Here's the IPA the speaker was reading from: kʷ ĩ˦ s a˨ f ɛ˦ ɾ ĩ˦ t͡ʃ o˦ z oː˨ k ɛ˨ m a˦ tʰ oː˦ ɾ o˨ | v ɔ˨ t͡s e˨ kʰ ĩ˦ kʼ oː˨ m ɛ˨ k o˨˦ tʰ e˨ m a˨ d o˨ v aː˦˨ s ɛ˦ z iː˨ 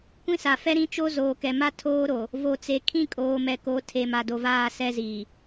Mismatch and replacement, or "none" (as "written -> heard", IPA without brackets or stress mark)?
ɔ˨ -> o˨